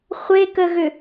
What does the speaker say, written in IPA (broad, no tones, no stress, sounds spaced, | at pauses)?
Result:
χʷ e k ə ɣ ʏ